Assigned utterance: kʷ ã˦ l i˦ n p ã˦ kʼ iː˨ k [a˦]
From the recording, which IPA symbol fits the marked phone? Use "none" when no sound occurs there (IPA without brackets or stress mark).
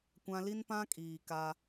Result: a˦